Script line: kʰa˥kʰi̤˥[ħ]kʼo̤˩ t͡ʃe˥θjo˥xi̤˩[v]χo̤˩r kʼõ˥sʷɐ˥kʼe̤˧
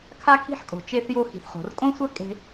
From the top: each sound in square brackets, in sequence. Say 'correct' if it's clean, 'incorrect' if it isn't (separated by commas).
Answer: correct, incorrect